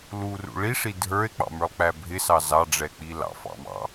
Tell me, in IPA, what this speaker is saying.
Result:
l u r ṵ ɭ i ʂ i dʱ ə˞ e̯ k͡p ɑ̰ m ə˞ lˠ k͡p æ bʱ ɪ s ɑ z ɑ ɖ͡ʐ ɛ k͡p i l ɑ̰ f ɑ̰ m ɑ̰

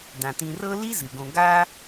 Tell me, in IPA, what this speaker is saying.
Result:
d ã˩ t ĩ˨ r ɤ˥ l i˥ z ɨ˩ ɡ õ˨ ɡ a˦

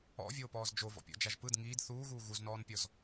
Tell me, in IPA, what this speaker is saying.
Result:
ɔ̰ vʲ oː p ɔː z d͡ʒ o v ɔ̰ pʲ ɔ̰ d͡ʒ a ʒ p ɯ d ŋ iː d θ uː ɣ uː ɣ u z n ɔː n pʲ ɔ z

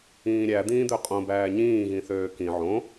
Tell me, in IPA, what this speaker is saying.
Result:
ĩː ɾʲ æ d̪ ĩː d̪ ø qʼ õ b æː ɲ ĩː ɣ ĩ θ øː k ĩ ʕ õ

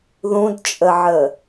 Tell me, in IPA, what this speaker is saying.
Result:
ð ũ d t͡ʃʼ ə ʕ ə

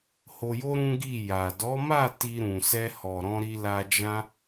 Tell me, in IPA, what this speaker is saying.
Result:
h o˧ j o˦ ɾ ũ˦ ɡ i˦˨ j a˨ d ɔ˨˦ m a˦˨ t i˧ ɾ ũ˨ s ɛ˧ h ɔ˨ ɾ ɔ̃˧ ɾ i˧ l a˧ d͡ʒ ã˦

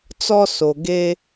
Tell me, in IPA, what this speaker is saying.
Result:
t͡s ɔ˨ s o˨ ɡ eː˦

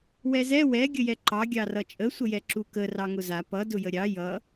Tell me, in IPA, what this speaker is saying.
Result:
w ɛ z ɛ w ɛ ɡʲ ə j ɛ ǃ ɑ ɡʲ ɑ r ʌ t͡ʃʼ ə sʷ ə j ɛ ǁ u k ə r ɑ ŋ ʊ z a p ʌ d ʊ j ə ɾʲ ɑ j ʌ

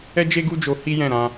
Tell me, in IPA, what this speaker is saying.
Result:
ɛ˦ d͡ʒ e˦ ɡ u˦ d͡ʒ o˧ h i˦ j ɛ̃˦˨ ɾ ã˧

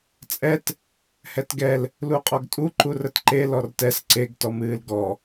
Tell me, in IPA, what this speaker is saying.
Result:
t͡sʼ ɛ t | h ɛ t ɡ ɛ l | l u qʼ ɔ ɡ tʼ u ǃ u r ə t ǃ e l ɔ r t ɛ s ǀ e ɡ t ɔ m ɨː l ɡ ɔ

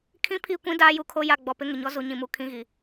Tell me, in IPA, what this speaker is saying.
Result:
kʰ ĩ˦ pʰ i˦˨ kʷ ĩ˦ d aː˦ j u˨ kʰ o˦ j a˦˨ ɡ͡b ɔ˨ p ɪ˦ ŋ ɪ˨ ɲ ɔ˦ z u˨ ɲ ĩ˨ m u˨ kʰ ĩ˦ ɣ i˨

